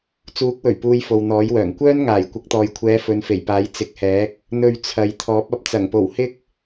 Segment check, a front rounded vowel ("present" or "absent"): present